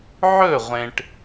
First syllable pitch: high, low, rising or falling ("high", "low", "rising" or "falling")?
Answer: falling